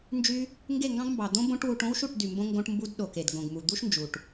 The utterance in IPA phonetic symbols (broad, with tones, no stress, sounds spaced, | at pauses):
n d͡ʒ y˦ | ŋ ɡ e˦˨ ŋ ɡ ɑ̃˦ ɡ m b ɑ˨ d̪ õ˦ b õ˦ ʈ w u˧ ʈ õ˦ w ʃ u˦˨ ʈ d y˨ m b õ˧ ŋ ɡ õ˦ ʈ m b u˦ d ɗ o˨ k e˨ d ɡ õ˨ ɡ m u˨ d̪ u˦ ʃ n d͡ʒ u˨ ʈ